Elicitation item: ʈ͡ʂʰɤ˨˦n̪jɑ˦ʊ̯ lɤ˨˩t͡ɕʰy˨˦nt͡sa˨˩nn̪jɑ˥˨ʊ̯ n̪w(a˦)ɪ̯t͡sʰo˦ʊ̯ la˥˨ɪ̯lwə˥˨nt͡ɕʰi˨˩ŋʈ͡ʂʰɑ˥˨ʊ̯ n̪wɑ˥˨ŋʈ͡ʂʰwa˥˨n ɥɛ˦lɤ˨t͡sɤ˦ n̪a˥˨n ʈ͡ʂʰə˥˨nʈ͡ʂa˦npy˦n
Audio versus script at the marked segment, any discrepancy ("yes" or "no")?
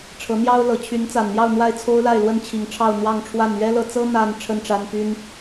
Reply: yes